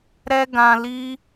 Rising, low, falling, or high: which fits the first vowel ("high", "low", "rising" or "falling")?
high